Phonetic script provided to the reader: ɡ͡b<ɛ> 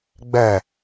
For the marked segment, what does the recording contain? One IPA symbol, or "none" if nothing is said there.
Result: ɛ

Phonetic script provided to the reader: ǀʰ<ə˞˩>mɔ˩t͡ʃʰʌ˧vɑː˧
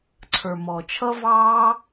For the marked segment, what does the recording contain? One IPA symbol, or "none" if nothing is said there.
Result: ə˞˩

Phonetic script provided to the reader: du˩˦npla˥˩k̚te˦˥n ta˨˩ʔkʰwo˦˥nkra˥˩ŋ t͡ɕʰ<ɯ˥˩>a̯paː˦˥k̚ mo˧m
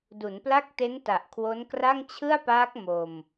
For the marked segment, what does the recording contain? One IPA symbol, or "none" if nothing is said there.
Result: ɯ˥˩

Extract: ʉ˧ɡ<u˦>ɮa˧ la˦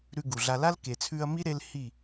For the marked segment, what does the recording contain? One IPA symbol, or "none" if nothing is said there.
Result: u˨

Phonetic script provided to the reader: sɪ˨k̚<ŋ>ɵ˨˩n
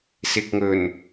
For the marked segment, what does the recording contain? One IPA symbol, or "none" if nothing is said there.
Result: ŋ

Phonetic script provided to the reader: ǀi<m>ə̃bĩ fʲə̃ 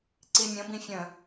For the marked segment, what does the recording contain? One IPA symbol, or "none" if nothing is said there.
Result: mʲ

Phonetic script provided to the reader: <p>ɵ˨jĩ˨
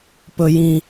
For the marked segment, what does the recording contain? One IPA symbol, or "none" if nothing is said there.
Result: p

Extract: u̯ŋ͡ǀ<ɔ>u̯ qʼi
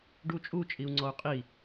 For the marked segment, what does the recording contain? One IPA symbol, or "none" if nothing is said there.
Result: ɔ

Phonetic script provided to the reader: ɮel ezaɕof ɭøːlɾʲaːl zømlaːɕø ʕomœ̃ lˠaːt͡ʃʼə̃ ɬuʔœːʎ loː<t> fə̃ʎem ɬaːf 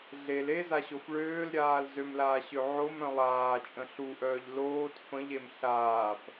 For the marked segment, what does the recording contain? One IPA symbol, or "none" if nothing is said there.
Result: t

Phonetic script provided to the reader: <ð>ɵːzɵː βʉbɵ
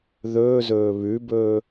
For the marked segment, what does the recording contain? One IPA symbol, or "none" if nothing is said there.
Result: ð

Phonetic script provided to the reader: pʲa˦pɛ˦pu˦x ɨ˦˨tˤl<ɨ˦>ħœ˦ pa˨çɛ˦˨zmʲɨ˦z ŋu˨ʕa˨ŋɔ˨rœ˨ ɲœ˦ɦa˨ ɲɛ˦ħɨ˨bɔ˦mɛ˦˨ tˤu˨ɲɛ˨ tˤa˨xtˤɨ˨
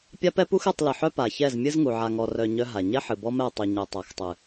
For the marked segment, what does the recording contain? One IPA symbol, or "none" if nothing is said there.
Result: ɨ˨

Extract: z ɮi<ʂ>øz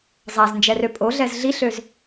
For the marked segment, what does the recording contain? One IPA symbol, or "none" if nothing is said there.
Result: ɬ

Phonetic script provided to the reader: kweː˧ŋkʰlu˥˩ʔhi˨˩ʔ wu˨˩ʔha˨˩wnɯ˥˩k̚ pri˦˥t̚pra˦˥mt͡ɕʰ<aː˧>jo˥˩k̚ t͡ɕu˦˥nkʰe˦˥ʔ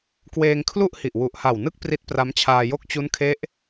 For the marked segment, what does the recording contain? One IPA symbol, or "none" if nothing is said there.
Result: aː˧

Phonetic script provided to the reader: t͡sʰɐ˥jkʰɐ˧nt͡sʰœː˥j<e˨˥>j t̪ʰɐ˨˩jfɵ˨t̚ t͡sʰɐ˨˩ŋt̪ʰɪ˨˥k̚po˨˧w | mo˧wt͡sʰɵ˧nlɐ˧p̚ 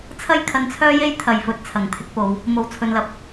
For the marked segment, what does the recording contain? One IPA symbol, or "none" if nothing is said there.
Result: e˥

